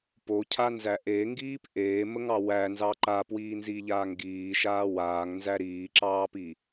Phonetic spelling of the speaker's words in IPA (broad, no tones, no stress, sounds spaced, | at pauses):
p o cʰ a n z æ ʔ e ŋ ɡ iː p ʔ eː m ə ŋ ɑ w æ n z ɑ ǃ a p w iː n z i ʎ aː ŋ ɡ iː ʃ aː w aː ŋ n z æ ɾ iː ǁ ɑː p i